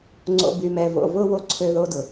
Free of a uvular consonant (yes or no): yes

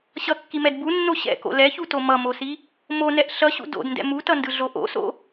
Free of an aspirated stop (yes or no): yes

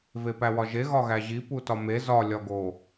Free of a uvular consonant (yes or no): yes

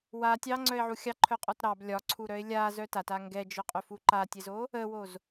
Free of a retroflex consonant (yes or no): yes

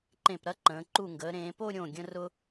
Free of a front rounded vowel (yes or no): yes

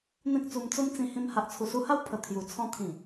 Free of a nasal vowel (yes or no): no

